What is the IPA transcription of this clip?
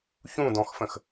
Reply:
ç ũ d ɔ̃ x f ə̃ x

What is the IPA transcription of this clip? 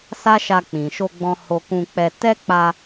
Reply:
s a˦ ʃ a˧ k͡p ĩ˨ ʃ o˧ ɡ͡b ɔ̃˧ h o˧ k ũ˧ k͡p ɛ˧ t ɛ˦ k͡p a˧

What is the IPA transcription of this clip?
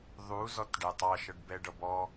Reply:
ðˤ u z ɔ t ɖ æ tˤ ɑ ʃ ʌ ɖ b ɛ ɖ ʌ b ɔ

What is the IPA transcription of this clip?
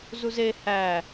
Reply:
z u z e h æ

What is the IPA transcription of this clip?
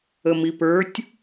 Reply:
ə m i p ə˞ tʲ

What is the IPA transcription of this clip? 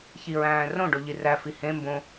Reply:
ç i ɹ æ̃ː r õ ɖ o ʎ i r æ f i h ẽ m b õ

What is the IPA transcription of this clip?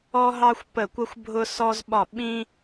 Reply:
ɔ˦ ɦ ɑ˦ xʷ p ə˦˨ kʷ ə˦ xʷ bʱ ʊ˦ s ɔ˦ z ɓ ɒ˦˨ ɓ ĩ˦

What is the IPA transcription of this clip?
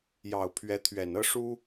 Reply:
j ɑ˨˩ ʊ̯ pʰ ɥ ɛ˧˥ t̪ʰ ɥ ɛ˨˩ n ɤ˥ ʂ u˥

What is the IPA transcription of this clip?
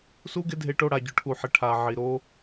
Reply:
s u˦ ɡ ɪ˦ dʱ e˧ ʈ o˧ ɽ a˨ ɟ ʊ˨ ʈʰ u˨ ħ ɪ˨ ʈʰ a˨ ʕ i˨ ɾ o˦

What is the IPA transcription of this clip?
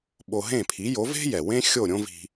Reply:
ɓ o˧ ɦ ẽ˥˩ pʰ i˩˥ j o˩˥ v e̤˥ j ɛ˩ w ẽ˥ xʲ o˥˩ ɾʲ õ˥ v i̤˧

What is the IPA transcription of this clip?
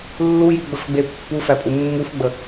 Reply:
lː u j i ɡ͡b ə f ɡ͡b e pː u f æ pʼ u mː u f ɡ͡b ə

